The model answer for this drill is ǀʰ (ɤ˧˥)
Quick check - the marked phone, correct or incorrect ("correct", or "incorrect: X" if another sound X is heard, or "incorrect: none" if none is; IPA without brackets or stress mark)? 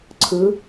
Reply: incorrect: ɯ˧˥